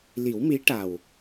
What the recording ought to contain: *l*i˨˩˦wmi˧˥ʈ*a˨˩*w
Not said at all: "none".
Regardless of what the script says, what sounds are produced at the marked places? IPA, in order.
l, a˨˩

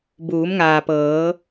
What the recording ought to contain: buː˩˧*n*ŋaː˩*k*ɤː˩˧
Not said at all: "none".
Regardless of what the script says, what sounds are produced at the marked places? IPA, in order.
m, p

